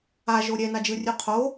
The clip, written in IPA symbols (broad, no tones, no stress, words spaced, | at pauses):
aʒo ɾʲɛnad͡ʒɯrʲu qʰo